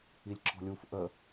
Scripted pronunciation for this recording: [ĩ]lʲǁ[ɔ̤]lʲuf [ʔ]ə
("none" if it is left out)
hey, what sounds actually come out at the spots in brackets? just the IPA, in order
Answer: i, ɔ̤, ʔ

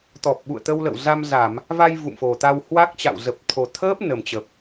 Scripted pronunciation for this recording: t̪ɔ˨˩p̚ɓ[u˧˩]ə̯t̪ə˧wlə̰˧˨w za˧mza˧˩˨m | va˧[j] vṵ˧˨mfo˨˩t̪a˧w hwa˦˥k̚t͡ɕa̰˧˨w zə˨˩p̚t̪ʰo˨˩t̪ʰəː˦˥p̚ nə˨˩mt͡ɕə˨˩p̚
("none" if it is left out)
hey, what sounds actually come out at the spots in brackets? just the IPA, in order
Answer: ṵ˧˨, j

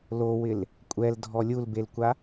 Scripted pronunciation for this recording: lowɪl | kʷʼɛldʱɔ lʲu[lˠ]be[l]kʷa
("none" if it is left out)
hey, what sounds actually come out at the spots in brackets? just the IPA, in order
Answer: l, l

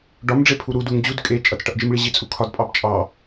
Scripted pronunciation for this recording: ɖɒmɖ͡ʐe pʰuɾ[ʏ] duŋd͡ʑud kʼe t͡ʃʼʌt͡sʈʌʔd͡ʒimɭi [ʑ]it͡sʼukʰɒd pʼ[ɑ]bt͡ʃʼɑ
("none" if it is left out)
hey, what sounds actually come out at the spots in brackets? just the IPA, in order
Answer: u, ʑ, ɑ

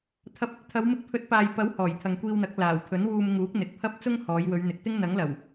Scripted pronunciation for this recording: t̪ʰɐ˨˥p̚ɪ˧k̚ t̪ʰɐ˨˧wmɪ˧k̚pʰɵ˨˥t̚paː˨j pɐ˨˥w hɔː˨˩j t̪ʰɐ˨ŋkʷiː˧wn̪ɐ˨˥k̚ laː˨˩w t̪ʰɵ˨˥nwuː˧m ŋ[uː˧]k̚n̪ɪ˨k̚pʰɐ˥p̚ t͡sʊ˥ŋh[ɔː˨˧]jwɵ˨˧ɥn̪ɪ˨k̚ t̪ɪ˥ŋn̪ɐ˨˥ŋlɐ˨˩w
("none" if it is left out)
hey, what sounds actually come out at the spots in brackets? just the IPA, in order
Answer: uː˨˥, ɔː˨˧

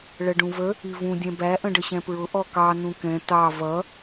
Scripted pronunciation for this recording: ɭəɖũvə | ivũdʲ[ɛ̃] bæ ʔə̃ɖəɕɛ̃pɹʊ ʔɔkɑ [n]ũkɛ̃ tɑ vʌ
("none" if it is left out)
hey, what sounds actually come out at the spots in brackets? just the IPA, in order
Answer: ɛ̃, n

